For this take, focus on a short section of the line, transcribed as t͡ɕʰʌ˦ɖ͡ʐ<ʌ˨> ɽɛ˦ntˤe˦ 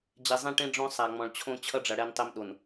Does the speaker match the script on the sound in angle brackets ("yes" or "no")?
yes